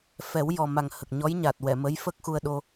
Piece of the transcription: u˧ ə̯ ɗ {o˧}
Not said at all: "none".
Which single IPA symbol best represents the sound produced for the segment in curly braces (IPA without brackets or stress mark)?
o˧